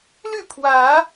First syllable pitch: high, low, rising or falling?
falling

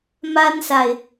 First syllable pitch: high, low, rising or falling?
high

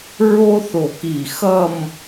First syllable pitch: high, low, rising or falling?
high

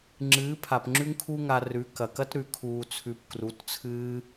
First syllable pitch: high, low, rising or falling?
rising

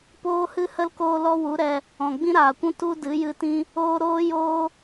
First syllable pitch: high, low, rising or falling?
high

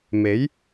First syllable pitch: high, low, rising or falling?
rising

